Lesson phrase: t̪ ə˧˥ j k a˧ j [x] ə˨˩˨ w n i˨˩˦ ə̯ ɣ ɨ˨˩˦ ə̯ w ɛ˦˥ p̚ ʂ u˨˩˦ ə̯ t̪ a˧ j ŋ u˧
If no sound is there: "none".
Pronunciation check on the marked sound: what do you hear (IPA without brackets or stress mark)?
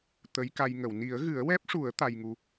ŋ